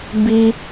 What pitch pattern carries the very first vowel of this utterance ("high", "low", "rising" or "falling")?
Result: high